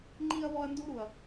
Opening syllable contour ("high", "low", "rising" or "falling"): high